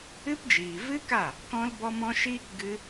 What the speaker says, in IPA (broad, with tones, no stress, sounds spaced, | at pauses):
ɨ˦ p d͡ʒ iː˨ v ɨ˦ k a˦˨ | k ɔ̃˦ l b ɔ˦ m ɔ̃˦ ʃ iː˦ k ɡ ɨ˦